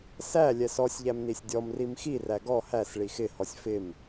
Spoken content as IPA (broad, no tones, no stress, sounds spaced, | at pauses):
s æ lʲ ɛ s ɔ sʲ ʎ æ m n i sʲ dʲ ɔ m r i m x i r æ ɡ ɔ h æ s ɭ i x ɪ h ɔ sʲ f ɪ m